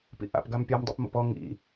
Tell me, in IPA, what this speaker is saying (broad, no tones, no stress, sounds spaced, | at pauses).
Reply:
p ḭ ʔ a̰ p ɡ a m pʲ a m dˤ ḭ p m o̰ p ɔ ŋ ḭ